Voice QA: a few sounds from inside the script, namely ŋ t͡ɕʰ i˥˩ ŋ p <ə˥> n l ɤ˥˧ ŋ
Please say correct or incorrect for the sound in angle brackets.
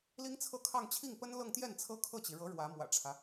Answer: correct